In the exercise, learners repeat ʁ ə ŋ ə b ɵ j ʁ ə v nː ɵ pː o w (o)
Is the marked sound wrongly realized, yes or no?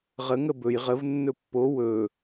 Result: yes